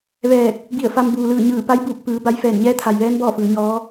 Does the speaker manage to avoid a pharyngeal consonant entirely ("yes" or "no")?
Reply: yes